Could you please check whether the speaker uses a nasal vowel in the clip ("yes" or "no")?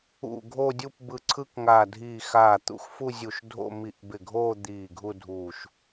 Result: no